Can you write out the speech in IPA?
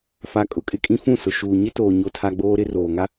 f a˨ kʼ ʊ˨ kʼ ɪ˦ kʼ ĩ˦ f ũ˦˨ s ʊ˨ ʃ uː˨ ɲ ɪ˦ t oː˨ ɲ o˦ tʰ a˦ ɡ͡b oː˦ ɾ ɪ˦ r oː˨ ŋ a˦

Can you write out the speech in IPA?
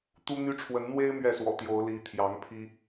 t̪ u˦ n̪ y˦ ʈ͡ʂʰ w ə˨˦ n n̪ w e˦ ɪ̯ m ɥ ɛ˥˨ s w ɔ̰˨˩ t̪ j o˨˦ ʊ̯ l i˨˦ t̪ʰ j ɑ˨˦ ŋ pʰ i˦

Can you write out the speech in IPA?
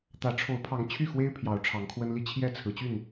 t̪ ä˨˦ ʈ͡ʂʰ o˨˦ ʊ̯ pʰ ɑ˨˦ ŋ t͡ɕʰ y˥˨ x w e˦ ɪ̯ pʰ j ɑ˨˦ ʊ̯ ʈ͡ʂʰ ɑ˨˦ ŋ kʰ w ə˦ n l i˥˨ t͡ɕʰ j ɛ˥˨ t͡sʰ ɹ̩˨˦ t͡ɕ y˥˨ n

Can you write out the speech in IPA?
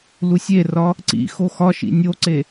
l u sʲ e r ɒ | ǀ ḭ x o x ɒ ʃ ḭ nʲ o ǀ e

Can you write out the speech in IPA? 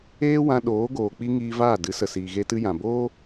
eː˦ w ã˧ ɗ oː˨˦ ɡ oː˨ k͡p i˦ ŋ iː˧ v aː˦˨ d ɨ˨˦ s ə˨ s iː˨ ɣ e˧ t ɨ˧ j ã˨ b oː˦

